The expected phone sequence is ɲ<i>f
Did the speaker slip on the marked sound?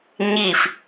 no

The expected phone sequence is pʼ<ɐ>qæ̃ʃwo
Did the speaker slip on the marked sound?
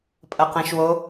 no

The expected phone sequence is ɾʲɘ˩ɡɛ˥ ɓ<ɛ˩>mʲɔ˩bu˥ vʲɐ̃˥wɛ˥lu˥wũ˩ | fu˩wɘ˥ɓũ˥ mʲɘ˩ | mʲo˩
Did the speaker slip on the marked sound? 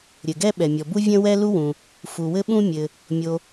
no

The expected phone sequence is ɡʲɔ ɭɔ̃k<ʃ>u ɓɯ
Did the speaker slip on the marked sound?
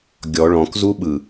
yes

